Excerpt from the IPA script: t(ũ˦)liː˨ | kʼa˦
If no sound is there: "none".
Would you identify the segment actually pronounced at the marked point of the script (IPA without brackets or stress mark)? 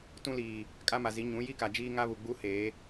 ũ˦